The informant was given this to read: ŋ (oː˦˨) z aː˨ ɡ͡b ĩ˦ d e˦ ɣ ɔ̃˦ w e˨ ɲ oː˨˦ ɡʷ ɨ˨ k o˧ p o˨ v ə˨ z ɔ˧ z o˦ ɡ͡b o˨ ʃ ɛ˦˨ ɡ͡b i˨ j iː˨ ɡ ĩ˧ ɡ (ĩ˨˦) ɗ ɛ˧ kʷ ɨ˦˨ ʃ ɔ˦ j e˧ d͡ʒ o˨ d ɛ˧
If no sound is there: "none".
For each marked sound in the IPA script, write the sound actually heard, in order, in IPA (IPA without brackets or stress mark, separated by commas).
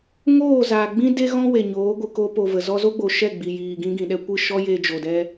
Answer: oː˦˨, ĩ˨